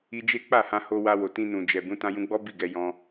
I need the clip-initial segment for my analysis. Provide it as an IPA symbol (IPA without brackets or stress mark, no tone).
i